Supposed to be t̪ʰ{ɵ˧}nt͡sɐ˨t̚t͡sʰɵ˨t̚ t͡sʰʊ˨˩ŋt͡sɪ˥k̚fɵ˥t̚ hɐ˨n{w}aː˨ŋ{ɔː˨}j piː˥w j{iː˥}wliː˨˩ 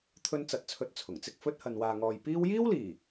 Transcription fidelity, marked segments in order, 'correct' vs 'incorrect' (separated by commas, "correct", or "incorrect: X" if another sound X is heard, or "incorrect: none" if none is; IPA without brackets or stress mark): correct, correct, correct, correct